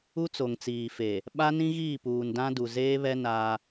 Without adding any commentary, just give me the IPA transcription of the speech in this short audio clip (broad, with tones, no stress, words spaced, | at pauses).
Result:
u˦t͡so˨ŋt͡siː˨fe˨ | ɓa˦nĩ˦ ɣiː˦˨puː˨ndã˦du˨ zeː˦βɛ˦ na˦